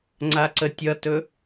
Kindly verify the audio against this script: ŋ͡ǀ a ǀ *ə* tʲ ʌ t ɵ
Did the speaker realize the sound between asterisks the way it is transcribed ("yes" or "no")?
yes